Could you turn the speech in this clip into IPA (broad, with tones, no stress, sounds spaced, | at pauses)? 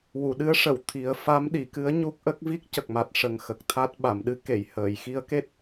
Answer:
w u˨˩˨ ɗ ɨ˧˥ ə̯ ʂ ə˨˩˨ w t̪ʰ i˨˩˦ ə̯ f a˧˥ m ɗ i˨˩˨ k ɨ˧˥ ə̯ ɲ u˦˥ k̚ ʔ ə˦˥ k̚ v i˦˥ k̚ c ə˨˩ k̚ m a˨˩ t̚ ʂ ə˨˩ ŋ x ə˨˩ k̚ t̪ʰ a˦˥ t̚ ɓ a˨˩˨ m ɗ ɨ˧˥ k e˨˩˨ j h əː˨˩˨ j x i˧˥ ə̯ k e˦˥ t̚